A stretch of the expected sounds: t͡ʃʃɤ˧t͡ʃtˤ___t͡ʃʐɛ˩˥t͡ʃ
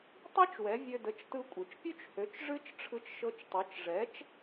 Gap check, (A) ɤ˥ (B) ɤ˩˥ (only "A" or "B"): B